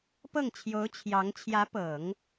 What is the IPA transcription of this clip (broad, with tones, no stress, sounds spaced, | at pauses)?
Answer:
p ɤ˥˩ ŋ t͡ɕʰ j o˧˥ ʊ̯ t͡ɕʰ j ɑ˧˥ ŋ t͡ɕʰ j ä˧˥ p ɤ˨˩˦ ŋ